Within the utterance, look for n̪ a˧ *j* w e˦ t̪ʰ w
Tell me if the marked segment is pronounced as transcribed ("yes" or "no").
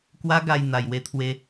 yes